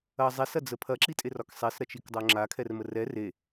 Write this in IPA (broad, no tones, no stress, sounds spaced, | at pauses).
ɐ zˤ e s ɐ d͡z ə pʰ ɐ ǁ i tʼ e r ɒ k sˤ e s ɾ ɐ t͡ʃ i k dˤ o ŋ͡ǁ a kʰ ɛ r m ə r ɛ r e